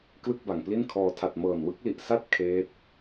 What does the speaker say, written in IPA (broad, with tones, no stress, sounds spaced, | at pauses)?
k l ɯ˥˩ k̚ b a˨˩ ŋ p l i˥˩ n kʰ ɔː˧ tʰ a˨˩ t̚ m ɤː˨˩ n w ɯ˦˥ k̚ l i˨˩ ʔ s a˥˩ t̚ kʰ eː˦˥ t̚